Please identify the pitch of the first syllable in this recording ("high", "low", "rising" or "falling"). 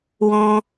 high